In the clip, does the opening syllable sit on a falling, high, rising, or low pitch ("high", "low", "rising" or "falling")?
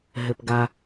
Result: low